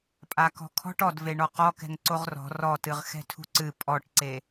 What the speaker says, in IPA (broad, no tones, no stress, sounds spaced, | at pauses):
pʼ a k ɔ̤ kʰ ɔ̤ ʈ ɔ d v e ɳ ɔ q ɔ k ɛ̤ ŋ ǀ o ʁ r ɔ̤ r ɔ t ɨ ʁ x ɛ̤ tʰ ṳ ǀ ɨ pʼ ɔ ʈ ǀ e